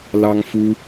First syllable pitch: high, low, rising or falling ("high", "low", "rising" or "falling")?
high